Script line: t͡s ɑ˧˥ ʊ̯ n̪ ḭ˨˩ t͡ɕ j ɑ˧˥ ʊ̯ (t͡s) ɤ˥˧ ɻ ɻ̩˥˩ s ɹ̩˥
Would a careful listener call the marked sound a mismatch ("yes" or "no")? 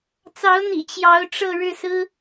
yes